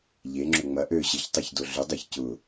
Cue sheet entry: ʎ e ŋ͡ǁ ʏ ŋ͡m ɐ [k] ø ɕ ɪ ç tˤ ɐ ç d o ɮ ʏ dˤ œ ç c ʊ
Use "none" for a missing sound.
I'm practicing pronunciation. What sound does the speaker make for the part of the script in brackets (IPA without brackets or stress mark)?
ʔ